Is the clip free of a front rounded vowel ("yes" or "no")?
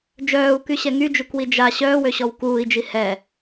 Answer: no